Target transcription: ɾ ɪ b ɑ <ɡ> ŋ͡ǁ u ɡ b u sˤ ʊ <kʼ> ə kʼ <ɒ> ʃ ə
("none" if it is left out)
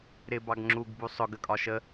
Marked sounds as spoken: ɡ, ɡ, ɒ

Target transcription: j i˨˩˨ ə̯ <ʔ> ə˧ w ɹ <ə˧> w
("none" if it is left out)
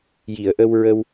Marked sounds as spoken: ʔ, ə˧

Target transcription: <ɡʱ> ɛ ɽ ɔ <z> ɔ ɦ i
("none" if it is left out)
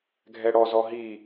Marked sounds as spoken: ɡʱ, z

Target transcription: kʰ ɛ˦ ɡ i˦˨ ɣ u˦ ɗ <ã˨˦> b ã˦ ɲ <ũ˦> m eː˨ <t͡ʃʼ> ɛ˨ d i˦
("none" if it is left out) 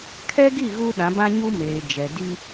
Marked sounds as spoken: ã˨˦, u˦, d͡ʒ

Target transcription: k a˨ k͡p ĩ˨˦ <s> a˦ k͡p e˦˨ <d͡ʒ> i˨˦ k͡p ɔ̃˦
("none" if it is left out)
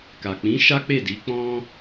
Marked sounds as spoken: ʃ, d

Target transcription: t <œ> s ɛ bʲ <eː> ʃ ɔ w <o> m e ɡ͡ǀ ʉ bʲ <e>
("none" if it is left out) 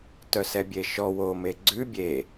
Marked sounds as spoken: œ, e, o, e

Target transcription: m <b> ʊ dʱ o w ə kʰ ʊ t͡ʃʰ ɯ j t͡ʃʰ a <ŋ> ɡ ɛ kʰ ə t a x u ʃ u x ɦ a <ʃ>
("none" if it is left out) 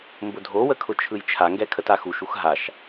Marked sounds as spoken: b, ŋ, ʃ

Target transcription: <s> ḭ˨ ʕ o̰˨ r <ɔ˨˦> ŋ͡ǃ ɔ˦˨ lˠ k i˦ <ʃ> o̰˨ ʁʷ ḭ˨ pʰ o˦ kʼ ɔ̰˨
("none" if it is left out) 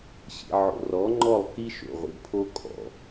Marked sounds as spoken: ɕ, ɔ˨˦, ʃ

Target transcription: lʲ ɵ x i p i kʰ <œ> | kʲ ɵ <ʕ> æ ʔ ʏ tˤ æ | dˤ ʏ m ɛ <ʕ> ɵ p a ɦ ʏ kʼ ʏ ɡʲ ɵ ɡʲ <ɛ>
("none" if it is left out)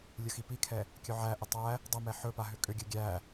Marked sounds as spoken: ɛ, ʕ, ħ, æ

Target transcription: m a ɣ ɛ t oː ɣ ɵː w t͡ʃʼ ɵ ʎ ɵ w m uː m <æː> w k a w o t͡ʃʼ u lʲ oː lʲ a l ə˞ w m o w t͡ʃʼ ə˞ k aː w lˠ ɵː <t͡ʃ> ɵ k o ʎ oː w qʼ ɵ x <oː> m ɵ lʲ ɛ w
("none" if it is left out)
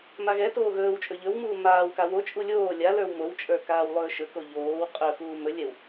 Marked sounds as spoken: aː, ʃ, uː

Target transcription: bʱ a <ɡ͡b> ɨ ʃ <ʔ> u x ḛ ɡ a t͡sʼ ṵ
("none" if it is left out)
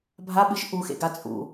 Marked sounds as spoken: ɓ, ʔ

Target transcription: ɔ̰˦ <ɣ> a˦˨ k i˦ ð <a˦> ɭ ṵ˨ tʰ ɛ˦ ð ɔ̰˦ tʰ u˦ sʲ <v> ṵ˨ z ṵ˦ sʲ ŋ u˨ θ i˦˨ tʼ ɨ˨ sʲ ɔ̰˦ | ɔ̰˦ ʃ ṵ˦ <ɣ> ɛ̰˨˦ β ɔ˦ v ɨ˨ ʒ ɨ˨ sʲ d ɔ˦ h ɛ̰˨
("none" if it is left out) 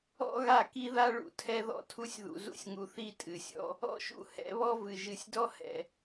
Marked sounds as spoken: ɣ, a˦, ð, h

